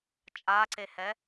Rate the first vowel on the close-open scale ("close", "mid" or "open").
open